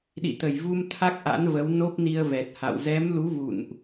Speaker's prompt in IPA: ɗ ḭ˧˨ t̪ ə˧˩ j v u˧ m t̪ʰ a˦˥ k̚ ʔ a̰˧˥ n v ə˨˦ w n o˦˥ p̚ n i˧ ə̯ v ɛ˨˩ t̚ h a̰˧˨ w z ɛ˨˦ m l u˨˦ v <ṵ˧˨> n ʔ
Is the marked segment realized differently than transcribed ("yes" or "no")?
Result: no